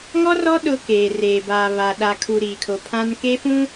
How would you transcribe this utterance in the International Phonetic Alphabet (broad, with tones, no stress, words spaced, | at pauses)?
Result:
ŋɔ˦rɔ˦ ɗʊ˦keː˨reː˨ ba˨βa˨ ɗa˨kʰu˨ ɾiː˨kʰo˨pʰã˦n ke˦fũ˦